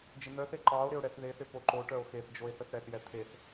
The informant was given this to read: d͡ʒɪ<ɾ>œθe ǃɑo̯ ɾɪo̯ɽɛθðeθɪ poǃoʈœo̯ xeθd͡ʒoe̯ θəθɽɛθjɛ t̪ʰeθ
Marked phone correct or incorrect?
incorrect